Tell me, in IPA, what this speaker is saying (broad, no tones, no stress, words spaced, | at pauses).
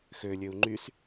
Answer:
xølʲøu̯ ŋ͡ǃys